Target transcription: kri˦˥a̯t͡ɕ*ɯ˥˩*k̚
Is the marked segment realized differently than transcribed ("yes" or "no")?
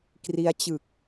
yes